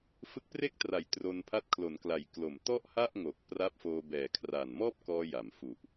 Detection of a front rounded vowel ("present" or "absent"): absent